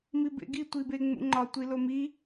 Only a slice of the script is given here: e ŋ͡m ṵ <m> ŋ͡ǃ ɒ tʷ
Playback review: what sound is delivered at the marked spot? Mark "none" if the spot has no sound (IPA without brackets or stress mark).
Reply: none